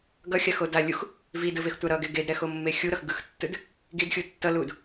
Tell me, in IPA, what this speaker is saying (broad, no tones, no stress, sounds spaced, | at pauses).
ɡ ʌ xʲ a x o d a lʲ u x | v i d ɯ v e x tʷ a ɾ ʌ ɡ e ɡ e d ɾ ɛ x o mː e xʲ u ɾ ʌ x ɡ ɯ x tː ɯ d | ɡ i d xʲ u tː ʌ l u d